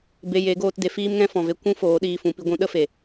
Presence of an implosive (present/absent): present